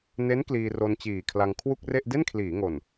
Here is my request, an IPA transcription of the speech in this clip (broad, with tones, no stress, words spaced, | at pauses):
ne˦˥n kliː˧ro˧nt͡ɕiː˨˩kʰla˧ŋ kʰwu˥˩k̚re˥˩ʔ de˥˩nkʰliː˩˦ ŋo˨˩n